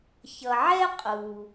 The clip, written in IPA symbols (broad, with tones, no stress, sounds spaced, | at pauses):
ç ʌ˩ ʕ ɛ˥ qʼ u˩